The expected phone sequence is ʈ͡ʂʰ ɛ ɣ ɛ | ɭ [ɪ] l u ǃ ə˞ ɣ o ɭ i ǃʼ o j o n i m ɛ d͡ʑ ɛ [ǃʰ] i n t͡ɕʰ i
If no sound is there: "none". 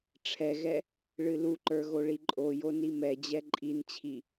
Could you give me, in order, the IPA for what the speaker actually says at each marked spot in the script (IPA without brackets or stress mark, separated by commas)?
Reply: ɨ, ǃʼ